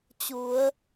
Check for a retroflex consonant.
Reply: absent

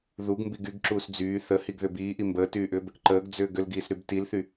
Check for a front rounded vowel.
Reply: present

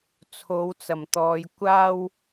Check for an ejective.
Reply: absent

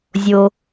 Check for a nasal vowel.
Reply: absent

